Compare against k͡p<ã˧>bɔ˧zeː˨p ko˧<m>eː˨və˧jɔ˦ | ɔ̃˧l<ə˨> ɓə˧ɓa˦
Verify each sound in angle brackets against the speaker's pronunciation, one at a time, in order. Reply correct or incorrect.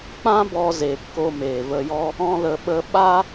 incorrect: ã˦, correct, correct

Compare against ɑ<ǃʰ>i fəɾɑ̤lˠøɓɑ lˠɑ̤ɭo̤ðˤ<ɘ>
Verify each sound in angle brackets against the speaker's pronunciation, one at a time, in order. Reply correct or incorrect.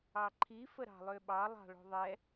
correct, incorrect: ɛ

